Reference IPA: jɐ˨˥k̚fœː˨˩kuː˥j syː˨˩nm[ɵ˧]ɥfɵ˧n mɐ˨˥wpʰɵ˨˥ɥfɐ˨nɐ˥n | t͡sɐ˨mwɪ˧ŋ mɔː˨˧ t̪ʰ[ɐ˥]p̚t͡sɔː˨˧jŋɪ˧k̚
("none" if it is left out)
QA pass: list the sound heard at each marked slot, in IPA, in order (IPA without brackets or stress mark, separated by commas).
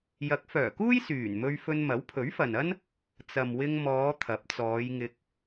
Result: ɵ˧, ɐ˨˥